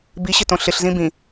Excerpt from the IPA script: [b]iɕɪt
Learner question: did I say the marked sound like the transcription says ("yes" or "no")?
yes